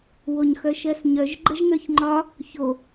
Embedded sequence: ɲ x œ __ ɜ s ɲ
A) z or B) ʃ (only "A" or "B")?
B